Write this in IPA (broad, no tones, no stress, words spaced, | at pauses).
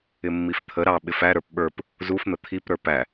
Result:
ɪmːift̪ʰə ɾɑ ɓɪfæ ɾə˞pɓə˞p | zufn̪ə t̪ʰipɾə˞ pæ